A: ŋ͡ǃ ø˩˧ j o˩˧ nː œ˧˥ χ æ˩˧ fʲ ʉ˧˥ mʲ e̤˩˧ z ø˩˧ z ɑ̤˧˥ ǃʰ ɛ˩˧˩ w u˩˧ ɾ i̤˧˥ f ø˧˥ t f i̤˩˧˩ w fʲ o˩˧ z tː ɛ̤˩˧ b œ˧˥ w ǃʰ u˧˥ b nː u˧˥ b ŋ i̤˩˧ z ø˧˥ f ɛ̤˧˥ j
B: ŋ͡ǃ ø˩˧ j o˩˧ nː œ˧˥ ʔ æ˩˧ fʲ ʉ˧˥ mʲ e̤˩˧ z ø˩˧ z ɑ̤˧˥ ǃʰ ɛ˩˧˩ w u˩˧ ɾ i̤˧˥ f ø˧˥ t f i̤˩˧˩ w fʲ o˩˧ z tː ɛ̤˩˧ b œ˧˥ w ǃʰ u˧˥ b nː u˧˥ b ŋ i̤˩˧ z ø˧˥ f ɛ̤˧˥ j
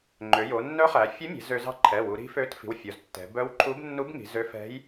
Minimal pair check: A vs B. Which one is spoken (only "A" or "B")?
A